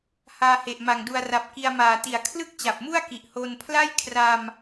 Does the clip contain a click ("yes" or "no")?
no